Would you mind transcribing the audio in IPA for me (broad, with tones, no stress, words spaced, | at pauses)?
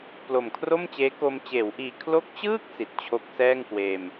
plo˨˩mkʰro˥˩mt͡ɕeː˦˥ko˧m t͡ɕeː˩˦wʔiː˨˩ kʰlo˦˥k̚t͡ɕɯː˥˩k̚ si˨˩t̚t͡ɕʰo˦˥k̚sɛː˥˩ŋkweː˧m